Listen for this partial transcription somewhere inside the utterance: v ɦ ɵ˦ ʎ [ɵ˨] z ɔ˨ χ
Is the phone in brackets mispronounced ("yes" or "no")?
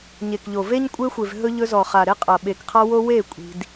yes